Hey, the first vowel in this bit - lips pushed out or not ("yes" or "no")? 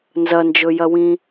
no